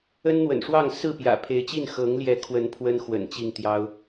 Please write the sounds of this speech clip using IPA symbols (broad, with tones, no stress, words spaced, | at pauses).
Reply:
ə˦nn̪wə̰˨˩nʂwɑ˥˨ŋ sɹ̩˥˨pjä̰˨˩pʰe˨˦ɪ̯t͡ɕi˥˨n xɤ˨˦ŋljɛ˨˦kʰwə˨˦n pʰwə˦nxwə̰˨˩n t͡ɕi˥˨ŋt̪jɑ˦ʊ̯